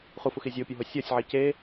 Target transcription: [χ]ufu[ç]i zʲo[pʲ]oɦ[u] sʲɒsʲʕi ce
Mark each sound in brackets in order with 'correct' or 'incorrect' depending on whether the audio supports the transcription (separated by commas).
correct, incorrect, correct, incorrect